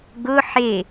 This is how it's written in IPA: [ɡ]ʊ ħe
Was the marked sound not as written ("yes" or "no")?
no